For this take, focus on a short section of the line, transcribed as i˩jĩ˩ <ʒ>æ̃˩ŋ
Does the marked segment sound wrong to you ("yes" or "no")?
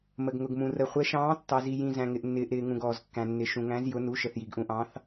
yes